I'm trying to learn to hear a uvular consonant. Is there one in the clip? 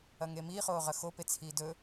yes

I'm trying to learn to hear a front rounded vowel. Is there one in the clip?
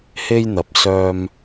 yes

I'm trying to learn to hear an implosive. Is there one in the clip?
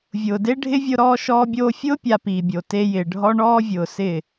no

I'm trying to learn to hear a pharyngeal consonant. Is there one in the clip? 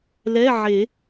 yes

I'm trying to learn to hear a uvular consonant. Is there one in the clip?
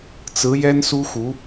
no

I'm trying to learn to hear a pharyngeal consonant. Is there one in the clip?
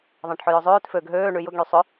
yes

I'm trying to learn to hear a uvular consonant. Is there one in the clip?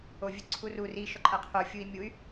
yes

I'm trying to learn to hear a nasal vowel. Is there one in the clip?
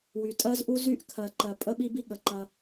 no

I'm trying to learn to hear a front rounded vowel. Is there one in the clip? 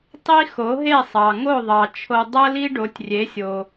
no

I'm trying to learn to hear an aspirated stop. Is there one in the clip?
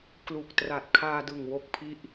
yes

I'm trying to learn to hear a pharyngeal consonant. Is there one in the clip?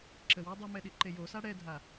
no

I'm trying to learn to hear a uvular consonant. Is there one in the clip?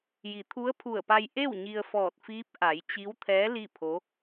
no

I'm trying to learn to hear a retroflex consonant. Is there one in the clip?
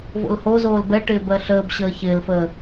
yes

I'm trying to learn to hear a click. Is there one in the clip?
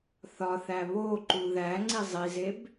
yes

